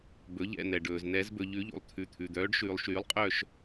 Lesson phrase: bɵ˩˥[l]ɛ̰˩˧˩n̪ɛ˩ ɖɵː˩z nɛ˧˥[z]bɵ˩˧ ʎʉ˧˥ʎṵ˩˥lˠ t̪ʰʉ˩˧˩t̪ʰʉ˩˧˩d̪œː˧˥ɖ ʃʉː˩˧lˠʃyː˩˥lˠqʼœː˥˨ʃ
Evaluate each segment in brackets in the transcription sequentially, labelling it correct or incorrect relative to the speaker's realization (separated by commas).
incorrect, correct